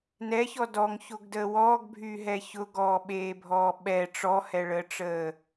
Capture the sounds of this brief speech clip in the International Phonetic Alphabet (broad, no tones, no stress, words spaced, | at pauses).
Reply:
nɛçɔ dɔŋçoɡdəː wɔːɡbʱyːɦɛ çʊɡɔːɓeːbʱɔː ɓɛ ʈ͡ʂɔhɛɭəːʈ͡ʂəː